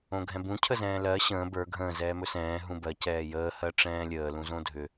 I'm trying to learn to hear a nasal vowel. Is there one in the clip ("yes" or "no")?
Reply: yes